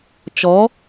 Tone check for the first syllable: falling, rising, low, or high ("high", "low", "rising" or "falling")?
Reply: rising